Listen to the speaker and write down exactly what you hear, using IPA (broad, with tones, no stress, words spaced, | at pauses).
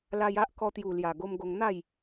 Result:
la˧ja˦ʔ kɔ˧t̪ju˨˩lja˨˩ɡo˧m ɡo˧ŋn̪a˥˧j